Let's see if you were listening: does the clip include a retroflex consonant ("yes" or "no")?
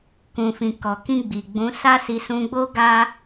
no